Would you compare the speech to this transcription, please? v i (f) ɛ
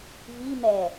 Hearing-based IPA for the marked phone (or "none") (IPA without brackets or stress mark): m